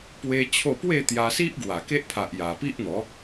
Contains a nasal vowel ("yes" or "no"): no